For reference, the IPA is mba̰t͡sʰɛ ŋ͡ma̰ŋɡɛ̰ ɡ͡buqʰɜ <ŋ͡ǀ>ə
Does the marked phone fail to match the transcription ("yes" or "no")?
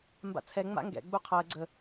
yes